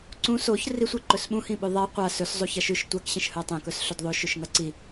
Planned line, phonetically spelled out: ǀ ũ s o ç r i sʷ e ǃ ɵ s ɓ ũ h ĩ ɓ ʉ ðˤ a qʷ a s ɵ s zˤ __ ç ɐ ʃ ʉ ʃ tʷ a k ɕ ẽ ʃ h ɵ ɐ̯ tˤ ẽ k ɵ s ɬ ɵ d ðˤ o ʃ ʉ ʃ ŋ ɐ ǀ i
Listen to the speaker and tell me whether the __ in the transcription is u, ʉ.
u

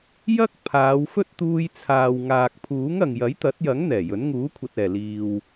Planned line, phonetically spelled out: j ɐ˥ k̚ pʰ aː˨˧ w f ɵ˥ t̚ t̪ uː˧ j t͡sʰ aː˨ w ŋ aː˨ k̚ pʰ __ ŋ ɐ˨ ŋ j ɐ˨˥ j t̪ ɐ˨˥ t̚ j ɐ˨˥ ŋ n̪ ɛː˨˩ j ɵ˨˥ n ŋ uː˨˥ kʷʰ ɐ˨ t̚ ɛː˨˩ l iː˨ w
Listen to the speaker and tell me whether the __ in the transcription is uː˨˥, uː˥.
uː˨˥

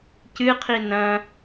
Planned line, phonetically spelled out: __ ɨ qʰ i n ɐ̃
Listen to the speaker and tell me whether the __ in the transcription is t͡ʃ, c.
c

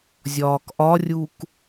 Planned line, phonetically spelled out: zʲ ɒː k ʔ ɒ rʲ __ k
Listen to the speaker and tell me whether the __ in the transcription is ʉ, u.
u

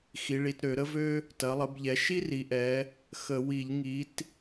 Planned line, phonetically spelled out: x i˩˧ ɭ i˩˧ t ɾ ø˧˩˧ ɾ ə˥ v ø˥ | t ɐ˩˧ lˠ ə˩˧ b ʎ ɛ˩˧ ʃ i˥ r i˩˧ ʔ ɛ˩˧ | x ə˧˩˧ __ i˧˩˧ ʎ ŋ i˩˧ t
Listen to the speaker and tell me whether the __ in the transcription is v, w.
w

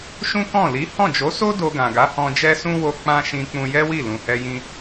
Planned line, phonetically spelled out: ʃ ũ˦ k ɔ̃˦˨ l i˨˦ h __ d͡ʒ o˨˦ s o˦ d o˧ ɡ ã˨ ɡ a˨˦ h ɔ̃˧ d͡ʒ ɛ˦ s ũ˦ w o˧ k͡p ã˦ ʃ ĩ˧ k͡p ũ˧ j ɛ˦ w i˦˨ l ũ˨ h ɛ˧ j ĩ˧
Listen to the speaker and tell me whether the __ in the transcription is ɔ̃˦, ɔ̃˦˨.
ɔ̃˦˨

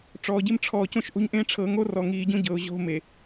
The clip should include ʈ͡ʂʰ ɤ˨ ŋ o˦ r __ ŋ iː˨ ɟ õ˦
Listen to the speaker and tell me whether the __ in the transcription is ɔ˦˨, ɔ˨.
ɔ˨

